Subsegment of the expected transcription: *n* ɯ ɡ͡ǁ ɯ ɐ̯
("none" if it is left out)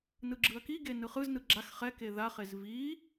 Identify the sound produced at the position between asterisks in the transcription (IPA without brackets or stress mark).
n